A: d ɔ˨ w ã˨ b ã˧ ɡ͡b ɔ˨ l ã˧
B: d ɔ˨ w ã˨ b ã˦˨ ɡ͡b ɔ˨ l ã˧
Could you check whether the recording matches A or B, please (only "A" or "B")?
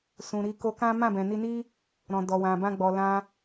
A